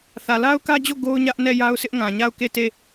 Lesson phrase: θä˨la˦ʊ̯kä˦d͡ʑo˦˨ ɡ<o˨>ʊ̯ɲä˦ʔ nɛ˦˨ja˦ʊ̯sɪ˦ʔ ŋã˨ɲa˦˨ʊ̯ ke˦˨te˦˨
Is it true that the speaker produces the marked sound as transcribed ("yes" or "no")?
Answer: no